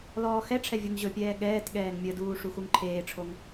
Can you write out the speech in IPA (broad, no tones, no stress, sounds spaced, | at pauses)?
l ɔː x ɛ ʈ͡ʂʰ ɛ vʲ u ŋ ʑ ɵ pʲ ɛː ɠ ɛː t ɠ ɛː ŋ mʲ ə d uː ʂ u x u ŋ ǃʰ eː ʈ͡ʂʰ o ŋ